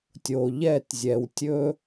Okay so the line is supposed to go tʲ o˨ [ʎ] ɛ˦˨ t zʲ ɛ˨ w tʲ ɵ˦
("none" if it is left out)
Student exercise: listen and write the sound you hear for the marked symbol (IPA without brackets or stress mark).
ʎ